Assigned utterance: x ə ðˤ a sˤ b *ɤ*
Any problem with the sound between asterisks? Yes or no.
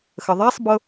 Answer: no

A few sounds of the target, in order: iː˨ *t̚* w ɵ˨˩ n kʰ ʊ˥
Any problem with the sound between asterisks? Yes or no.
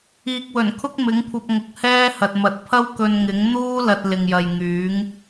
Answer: yes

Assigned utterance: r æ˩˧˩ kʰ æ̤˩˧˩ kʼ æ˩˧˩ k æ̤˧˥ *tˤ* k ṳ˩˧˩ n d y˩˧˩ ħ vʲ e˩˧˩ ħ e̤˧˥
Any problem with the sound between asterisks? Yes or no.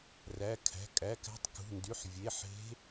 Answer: no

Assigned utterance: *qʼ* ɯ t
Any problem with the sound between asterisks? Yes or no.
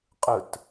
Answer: no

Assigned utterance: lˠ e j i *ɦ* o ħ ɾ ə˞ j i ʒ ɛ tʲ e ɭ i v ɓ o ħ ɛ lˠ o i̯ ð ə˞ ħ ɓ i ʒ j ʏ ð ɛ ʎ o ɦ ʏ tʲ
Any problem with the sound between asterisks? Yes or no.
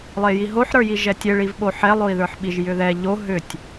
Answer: no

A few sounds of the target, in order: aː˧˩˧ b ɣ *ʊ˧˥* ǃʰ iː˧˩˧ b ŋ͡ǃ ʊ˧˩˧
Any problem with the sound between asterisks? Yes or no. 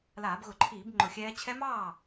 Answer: yes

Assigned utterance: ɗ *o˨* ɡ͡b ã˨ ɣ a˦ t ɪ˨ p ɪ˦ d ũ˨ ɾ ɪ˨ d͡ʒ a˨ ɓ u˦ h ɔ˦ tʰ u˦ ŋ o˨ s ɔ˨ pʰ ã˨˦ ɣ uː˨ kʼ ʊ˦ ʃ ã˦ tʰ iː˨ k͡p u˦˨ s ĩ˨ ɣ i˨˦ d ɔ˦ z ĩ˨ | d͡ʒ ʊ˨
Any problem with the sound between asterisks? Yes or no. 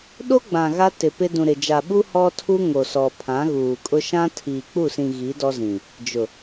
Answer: yes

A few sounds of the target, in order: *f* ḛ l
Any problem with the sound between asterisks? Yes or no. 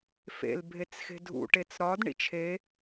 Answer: no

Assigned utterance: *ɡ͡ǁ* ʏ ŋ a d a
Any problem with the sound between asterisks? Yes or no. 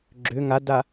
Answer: no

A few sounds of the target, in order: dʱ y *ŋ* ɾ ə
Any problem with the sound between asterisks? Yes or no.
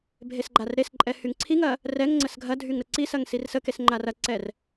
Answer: no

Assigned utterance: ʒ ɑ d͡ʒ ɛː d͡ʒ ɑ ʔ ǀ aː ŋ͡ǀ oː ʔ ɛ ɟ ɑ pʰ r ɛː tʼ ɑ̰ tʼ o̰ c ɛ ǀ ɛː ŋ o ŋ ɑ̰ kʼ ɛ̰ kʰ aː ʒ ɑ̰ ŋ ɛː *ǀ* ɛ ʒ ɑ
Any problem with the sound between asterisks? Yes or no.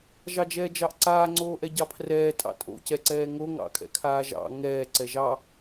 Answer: no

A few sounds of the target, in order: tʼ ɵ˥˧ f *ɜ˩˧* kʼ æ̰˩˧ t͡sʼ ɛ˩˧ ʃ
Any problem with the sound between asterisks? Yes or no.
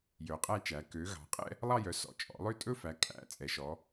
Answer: yes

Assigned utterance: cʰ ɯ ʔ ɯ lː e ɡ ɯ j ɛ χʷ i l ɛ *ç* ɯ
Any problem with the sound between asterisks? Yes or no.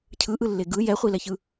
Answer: no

